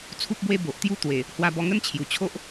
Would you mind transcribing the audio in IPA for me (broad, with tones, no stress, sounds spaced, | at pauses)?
t͡sʰ u˦ p̚ b w e˥˧ b o˨ ʔ t̪ j u˥˧ t̪ w e˨˩ | h w a˧ b ɔ˧ ŋ ə˥˧ n t͡ɕʰ j u˨˩ t͡ɕʰ o˦ ʔ